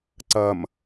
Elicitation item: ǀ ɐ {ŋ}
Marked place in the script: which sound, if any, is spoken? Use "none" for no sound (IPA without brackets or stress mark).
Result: m